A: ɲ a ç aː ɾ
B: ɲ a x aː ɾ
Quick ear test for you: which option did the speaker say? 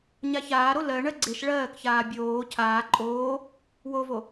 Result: A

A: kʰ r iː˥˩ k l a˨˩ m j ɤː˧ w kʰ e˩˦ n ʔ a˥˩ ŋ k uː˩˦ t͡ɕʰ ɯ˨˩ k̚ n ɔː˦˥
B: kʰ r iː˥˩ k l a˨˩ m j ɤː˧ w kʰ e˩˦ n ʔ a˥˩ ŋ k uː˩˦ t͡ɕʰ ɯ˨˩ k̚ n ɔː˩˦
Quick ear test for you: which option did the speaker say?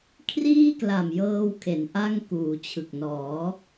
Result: B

